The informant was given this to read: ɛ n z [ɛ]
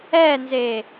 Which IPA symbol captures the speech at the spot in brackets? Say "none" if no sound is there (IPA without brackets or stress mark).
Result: e